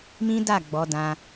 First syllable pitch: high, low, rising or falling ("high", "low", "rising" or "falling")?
high